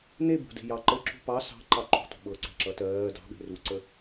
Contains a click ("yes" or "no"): yes